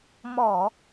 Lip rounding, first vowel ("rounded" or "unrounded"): rounded